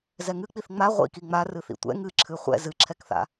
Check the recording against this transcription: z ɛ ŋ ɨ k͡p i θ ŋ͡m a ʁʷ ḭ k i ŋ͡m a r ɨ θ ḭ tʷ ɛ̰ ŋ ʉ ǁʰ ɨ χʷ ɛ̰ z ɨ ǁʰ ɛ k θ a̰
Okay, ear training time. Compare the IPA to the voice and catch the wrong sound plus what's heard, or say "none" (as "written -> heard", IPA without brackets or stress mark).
ʉ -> ɨ